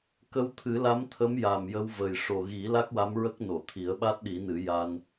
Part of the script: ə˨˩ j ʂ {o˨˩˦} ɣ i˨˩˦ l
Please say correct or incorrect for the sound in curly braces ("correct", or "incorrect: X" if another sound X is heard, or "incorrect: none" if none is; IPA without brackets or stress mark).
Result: incorrect: o˨˩